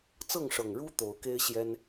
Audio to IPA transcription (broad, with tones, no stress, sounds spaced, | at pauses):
t͡s ɤ˥˨ ŋ ʂ ɤ˨˩ ŋ ɻ u˦ t̪ o˨˦ ʊ̯ k e˦ ɪ̯ ɕ j ɛ˦ n